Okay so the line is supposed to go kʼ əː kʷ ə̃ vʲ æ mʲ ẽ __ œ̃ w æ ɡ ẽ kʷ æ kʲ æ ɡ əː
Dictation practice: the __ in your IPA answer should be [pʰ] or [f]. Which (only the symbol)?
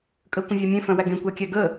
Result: f